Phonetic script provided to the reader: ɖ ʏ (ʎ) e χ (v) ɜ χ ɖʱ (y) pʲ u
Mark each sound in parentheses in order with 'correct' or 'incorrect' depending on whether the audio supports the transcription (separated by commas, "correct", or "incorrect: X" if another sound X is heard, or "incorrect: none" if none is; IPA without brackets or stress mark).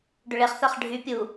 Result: incorrect: ɭ, incorrect: θ, correct